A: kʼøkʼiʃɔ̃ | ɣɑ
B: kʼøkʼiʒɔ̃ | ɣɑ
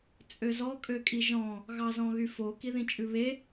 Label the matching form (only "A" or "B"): B